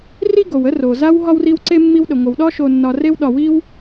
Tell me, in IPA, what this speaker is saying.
r i˥ ɡ o˩ w ə˥ r o˩ z a˦ w ɦ ɒ˥ w r i˦ w ǀ e˥ mː i˦ w ɗ ə˩ ŋʷ ə˨ w ɗ ɒ˥ ʃ o˨ nː ɒ˨ r e˦ w ɗ ɒ˨ w i˥ w

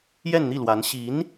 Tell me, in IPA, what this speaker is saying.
j ɛ˥˧ n n̪ i˥˩ l w a˧˥ n ɕ i˧˥ n

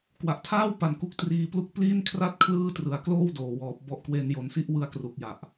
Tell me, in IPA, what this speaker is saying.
k w a˨˩ ʔ tʰ aː˥˩ w p a˩˦ n k u˦˥ k̚ t r iː˦˥ p l u˥˩ k̚ p l i˥˩ n kʰ r a˥˩ t̚ kʰ l ɯː˥˩ t r ɯ˩˦ a̯ k l oː˥˩ w d oː˨˩ w ɔː˨˩ p̚ b ɔ˦˥ ʔ k w e˧ n j o˨˩ n s i˥˩ ʔ w ɯ˧ a̯ k r u˨˩ k̚ j a˨˩ ʔ

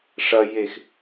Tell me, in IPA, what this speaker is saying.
ʂ ɐ j e x

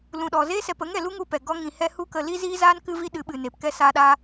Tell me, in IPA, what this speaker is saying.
l ũ˨ ɗ ɔ˨ z e˦ s ɛ˨ p ə˨˦ ŋ ɛ˨ l u˦ ŋ u˧ p ɛ˨ ɡ ɔ˦ ŋ ĩ˧ h ɛ˦ h u˦ k ə˧ l i˦ z iː˦ z aː˦ n k ɨ˦ v i˦ ɗ ɨ˨˦ ɓ ɨ˨ n e˨ p k ɛ˦ s aː˦ ɗ a˦

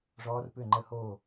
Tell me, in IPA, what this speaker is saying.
ʐ ɔː˦˥ r p ʏ˥˨ ŋ͡ǃ ə˥˨ h oː˥˨

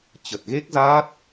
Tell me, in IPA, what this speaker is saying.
t͡ɕ ə˨˩ t̚ ɣ e˦˥ k̚ z aː˦˥ t̚

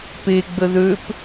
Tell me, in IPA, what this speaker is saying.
p e ɡ͡b ə ð ø p

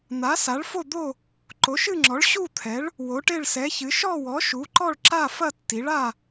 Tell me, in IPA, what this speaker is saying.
n̪ a˨˥ s a˨˥ ɭ f o˥˧ d̪ o˥˧ | ǃ o˨˥ ʃ ɨ˥˧ ŋ͡ǁ ɔ˨˥ ɭ ɕ u˥˧ t̪ʰ ɛ˨˥ ɭ | w o˨˥ ʈ e˥˧ ɭ s ɛ˨˥ ç ɨ˨˥ ʃ ɔ˥˧ w ɔ˨˥ ʃ u˨˥ ǃ ɔ˥˧ ɭ ǁ a˥˧ f ɐ˥˧ tː i˨˥ ɭ a˥˧

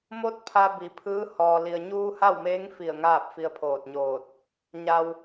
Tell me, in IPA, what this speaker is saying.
m o˧˥ t̚ pʰ a˧ b i˩˧ pʰ ɯː˧˥ h ɔː˩ l i˩ ə̯ ɲ uː˧ h a˥˨ w m eː˧˥ ŋ f i˧˩ ə̯ ŋ aː˥˨ p̚ f i˧ ə̯ pʰ oː˧˩ t̚ ɲ oː˧˩ t̚ | ɲ a˩ w

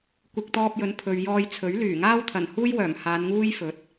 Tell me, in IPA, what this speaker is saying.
kʷ ɪ˨ k̚ t̪ ɔː˧ p̚ j ɵ˨˥ n pʰ ɵ˨ ɥ j ɔː˧ j t͡sʰ ɵ˨˥ ɥ l yː˨˩ ŋ aː˥ w t̪ʰ ɐ˨˩ n h uː˥ j w œː˨˩ m h aː˨˧ n ŋ uː˥ j f ɵ˨˥ t̚

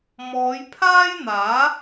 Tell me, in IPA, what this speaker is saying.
m ɔː˨˧ j pʰ aː˥ j n̪ aː˨˥

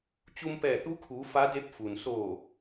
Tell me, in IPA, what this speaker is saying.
t͡ɕ u˧ m p ɛː˧˩ t̪ u˧˥ kʰ uː˩˧ f a˧˥ d e˧˥ p̚ f u˩ n s oː˧˩

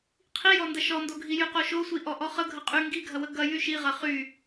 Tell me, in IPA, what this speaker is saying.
qʰ i j ɔ n d ɐ ʃ ɔ n d o ɡʱ i j y q o ʃ o sʷ i ʔ ɔ ʔ ɔ χ ə ɡʱ ə qʼ y ŋ ɡ i ɡʱ ɐ w ə ɡ ɐ j y ʃ i ʁ ɐ χ y

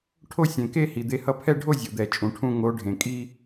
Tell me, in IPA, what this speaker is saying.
ʈʰ o˥˧ sʲ ẽ˩ k e˥˧ h i˩ d̪ e˨˦ h ʌ˥˧ pʰ ɛ˥˧ ɖʱ o˥˧ zʲ o˩ d̪ ɛ˩ t͡ʃʼ ũ˩ ʈʰ ũ˥˧ ŋ o˨˦ ɖʱ ẽ˩ kʼ i˥˧

